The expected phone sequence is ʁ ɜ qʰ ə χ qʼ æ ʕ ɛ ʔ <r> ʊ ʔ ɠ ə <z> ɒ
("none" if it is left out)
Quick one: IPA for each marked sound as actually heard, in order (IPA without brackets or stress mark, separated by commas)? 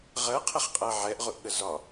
ʁ, z